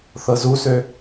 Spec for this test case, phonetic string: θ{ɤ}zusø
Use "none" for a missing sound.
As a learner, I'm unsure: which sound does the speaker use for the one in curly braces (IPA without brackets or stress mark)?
ɤ